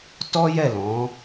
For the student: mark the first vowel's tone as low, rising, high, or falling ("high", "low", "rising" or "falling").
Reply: high